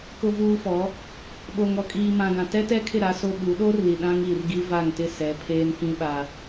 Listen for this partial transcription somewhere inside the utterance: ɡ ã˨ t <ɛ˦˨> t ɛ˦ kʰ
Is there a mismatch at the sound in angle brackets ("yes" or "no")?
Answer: yes